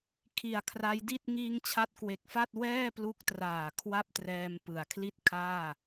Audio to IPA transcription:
kʰ i˨˩ a̯ kʰ r a˦˥ j d i˥˩ t̚ ŋ iː˧ ŋ t͡ɕʰ a˦˥ t̚ k w e˨˩ k̚ f a˥˩ t̚ w ɛː˥˩ p l u˦˥ k̚ t r aː˨˩ kʰ w a˥˩ p̚ t r ɛː˧ m p ɯ˩˦ a̯ kʰ l i˥˩ t̚ kʰ aː˥˩

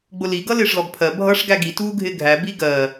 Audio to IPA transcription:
ɡ͡b ʊ l i ɡ ʌ l ɪː ʂ l ɔ ɡ pʰ ɜ bʱ ʌ ʂ ɡ æ ɡ i t uː ɡʱ ɪː ɡʱ æ b i ɡ ɜ

